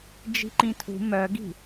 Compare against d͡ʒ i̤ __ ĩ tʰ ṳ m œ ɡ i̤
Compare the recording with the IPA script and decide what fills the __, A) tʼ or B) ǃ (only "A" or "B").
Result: B